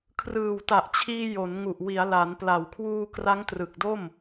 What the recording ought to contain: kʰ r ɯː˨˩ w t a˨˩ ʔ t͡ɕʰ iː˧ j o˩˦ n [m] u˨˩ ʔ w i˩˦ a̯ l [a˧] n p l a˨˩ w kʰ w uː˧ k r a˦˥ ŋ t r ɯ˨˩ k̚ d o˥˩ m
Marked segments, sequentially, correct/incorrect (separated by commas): incorrect, incorrect